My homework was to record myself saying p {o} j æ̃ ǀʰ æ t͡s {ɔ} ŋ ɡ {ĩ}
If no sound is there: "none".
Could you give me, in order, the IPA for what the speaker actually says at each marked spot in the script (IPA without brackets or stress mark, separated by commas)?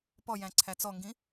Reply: ɔ, ɔ, ĩ